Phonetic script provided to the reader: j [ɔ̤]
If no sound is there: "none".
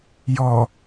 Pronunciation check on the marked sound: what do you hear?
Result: ɔ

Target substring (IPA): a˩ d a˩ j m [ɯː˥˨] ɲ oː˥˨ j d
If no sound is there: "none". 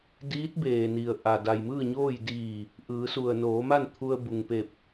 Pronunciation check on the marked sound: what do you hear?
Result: ɯː˥˨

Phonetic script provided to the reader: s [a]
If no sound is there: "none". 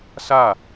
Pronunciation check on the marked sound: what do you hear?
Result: a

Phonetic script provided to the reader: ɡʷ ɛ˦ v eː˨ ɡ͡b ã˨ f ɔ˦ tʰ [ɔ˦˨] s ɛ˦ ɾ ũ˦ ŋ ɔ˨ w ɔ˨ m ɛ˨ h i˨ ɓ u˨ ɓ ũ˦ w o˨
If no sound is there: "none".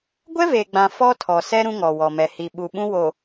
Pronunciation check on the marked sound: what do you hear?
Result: ɔ˨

